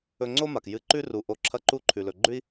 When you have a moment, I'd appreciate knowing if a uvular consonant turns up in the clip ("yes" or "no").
no